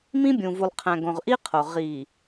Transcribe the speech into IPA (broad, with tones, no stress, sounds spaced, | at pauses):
m ĩ˦ bʲ ũ˨ v u˨ lˠ qʰ æ̃˨ ɡ õ˨ ʁ ʔ i˦ qʰ o˨ ʁ i˨